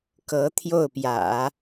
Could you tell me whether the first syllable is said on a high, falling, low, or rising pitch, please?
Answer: rising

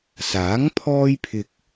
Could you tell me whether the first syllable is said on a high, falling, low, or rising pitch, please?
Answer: rising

